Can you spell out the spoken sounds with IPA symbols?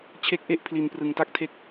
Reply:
t͡ɕʰe˦˥k̚ʔe˥˩ʔpʰli˨˩n prɯ˨˩ŋta˥˩k̚tʰe˥˩k̚

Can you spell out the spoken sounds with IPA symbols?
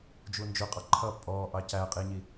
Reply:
d͡ʒund͡ʒʊqʼɑ ǃʰʌ pʼɔ ʔɑcæqʼiɲi

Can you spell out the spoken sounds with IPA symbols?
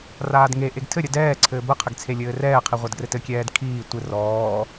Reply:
raːdŋe ʔeɡtʰɘ ɾʲədɛː ǀʰɘːbə qʰɘɡt͡sʰelʲɘːrɛː qʰiʁʷadɡrɘtɘ kʲɛːdkʰiː tʷɘ rɔː

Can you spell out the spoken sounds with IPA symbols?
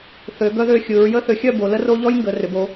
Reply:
θø˩˧ ɡœ˦ðø˥˩xʲɯ˩˧ɹ jə˦θʏ˩˧xʲœ˥˩ bo˩˧ lə˦ ro˦ ʎɔ˦jŋɡə˩˧rʏ˩˧bo˩˧

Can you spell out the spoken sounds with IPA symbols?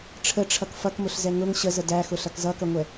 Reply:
ʈ͡ʂʰəʈ͡ʂʰʌk fʌkmʊɬzɛ ŋʊŋ ɕəzə dæxʊɬʌk zʌkʌŋʷɛ

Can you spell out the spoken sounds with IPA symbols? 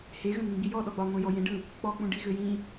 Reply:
heɣə̃nĩ ɡ͡bijɔ ɗɔɡ͡bɒ ŋʷẽ jɔjẽɖɯ | k͡pɔk͡pũ ɖiɣøjĩ

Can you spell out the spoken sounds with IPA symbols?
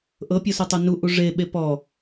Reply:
ʔɤpʲɔsutˤu nu ʔuʐe ɓepɔ

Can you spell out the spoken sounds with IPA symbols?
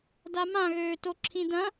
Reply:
damãɣøːto ǁʰĩdɐ̃

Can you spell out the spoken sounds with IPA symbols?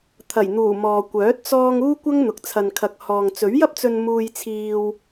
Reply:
t̪ʰɐ˨˩jn̪uː˨˩ mɔː˨kʷœː˨˥t̚ t͡sɔː˧ŋ uː˥kʷɐ˥ŋn̪ʊ˨k̚ t͡sʰɐ˨nkʰɐ˨k̚ hɔː˨ŋt͡sɵ˨˥ɥjɐ˥p̚t͡sɵ˧n muː˧jt͡sʰiː˧w

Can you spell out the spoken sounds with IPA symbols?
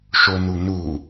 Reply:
ʃonunu

